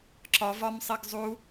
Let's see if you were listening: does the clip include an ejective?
no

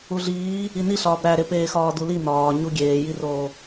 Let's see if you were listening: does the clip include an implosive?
no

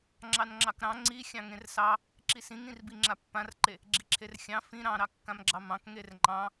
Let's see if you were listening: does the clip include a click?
yes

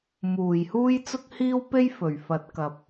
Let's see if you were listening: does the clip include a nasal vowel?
no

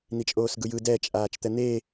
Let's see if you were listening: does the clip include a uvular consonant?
no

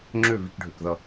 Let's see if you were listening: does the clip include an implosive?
no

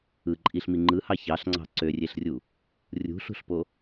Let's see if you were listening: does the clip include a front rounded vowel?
yes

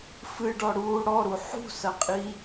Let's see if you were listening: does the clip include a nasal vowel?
no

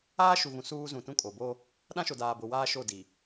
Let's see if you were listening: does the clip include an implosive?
yes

